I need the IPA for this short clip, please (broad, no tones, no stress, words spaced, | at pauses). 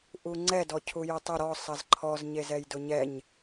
ʔuŋ͡ǀɛ dɔcʰujʊtˤʊ ɾɔ sˤɐzǃʰɔz ɲezɛjdʊɲɛɲ